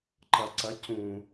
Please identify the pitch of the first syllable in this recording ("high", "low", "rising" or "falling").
low